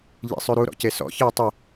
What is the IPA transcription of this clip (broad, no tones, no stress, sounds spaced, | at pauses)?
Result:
ʎ ḭ sˤ ʉ ɾ u ɾ ɔ̰ c e s ɔ̰ ç ɘː tˤ ɘ